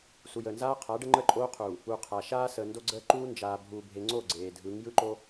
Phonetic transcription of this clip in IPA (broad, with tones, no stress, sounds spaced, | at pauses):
s u˨ j əː˨ n z aː˦ qʰ a˨˦ ɖ ə˦ ŋ͡ǃ əː˦ ǃʼ oː˦ qʰ uː˨ | u˨ qʰ a˨ ʃ aː˦ s əː˨ n d o˦ ɡ͡ǀ əː˦ ǃ uː˦ n d͡ʒ aː˨ bʱ uː˨ bʱ e˨ ŋ͡ǀ oː˦˨ ɡ͡ǀ eː˨ dʱ ɯ˨˦ ŋ j ɯ˦ ǃ o˦